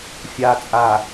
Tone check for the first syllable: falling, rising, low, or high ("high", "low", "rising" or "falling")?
low